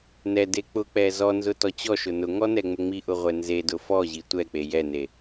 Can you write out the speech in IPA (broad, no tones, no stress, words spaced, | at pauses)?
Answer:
nɛde k͡pʊk͡pɛ zɔnzʊ tɔt͡ɕɔʃʊ nʊŋɔ nɛŋ͡mʊŋ͡miʔʊ ʁʷɛnzedʊ fɔʑi tʷɛ k͡pejɛne